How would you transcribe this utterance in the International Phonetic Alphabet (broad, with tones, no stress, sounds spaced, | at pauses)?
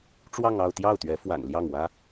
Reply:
ʈ͡ʂ w ɑ˥˧ ŋ ɑ˥˧ ʊ̯ t̪ j ɑ˥˩ ʊ̯ t̪ ɥ ɛ˧˥ f w a̰˨˩ n l j ɑ˥˩ ŋ w ä˥